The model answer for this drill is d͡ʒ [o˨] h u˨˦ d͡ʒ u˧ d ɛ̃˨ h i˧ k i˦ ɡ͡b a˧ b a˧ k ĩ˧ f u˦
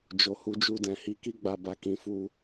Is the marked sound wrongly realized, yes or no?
no